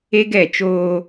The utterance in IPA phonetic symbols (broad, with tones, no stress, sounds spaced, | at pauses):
e˦ ɡ ɛ˦˨ t͡ʃ oː˦